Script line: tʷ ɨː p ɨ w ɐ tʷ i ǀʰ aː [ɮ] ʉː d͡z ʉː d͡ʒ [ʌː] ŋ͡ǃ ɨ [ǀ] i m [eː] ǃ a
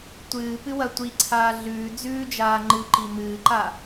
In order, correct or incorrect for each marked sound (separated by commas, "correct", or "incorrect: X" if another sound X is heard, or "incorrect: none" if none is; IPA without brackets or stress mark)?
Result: correct, incorrect: aː, incorrect: ǃ, incorrect: ɨː